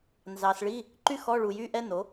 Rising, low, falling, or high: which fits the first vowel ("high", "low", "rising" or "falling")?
low